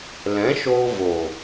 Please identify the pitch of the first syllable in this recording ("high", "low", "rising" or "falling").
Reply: rising